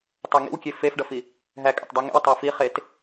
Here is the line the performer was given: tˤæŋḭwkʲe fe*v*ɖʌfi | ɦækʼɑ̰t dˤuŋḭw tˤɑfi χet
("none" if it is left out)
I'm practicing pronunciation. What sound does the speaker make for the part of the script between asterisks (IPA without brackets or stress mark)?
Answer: f